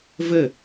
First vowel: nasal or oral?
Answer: oral